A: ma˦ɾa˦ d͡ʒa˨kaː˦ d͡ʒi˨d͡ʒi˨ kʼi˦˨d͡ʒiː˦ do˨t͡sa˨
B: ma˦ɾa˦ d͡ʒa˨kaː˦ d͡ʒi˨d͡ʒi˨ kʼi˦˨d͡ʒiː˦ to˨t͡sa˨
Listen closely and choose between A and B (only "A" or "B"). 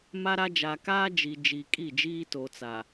B